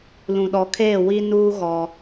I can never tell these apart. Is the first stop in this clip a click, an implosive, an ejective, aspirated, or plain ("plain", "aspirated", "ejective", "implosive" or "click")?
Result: implosive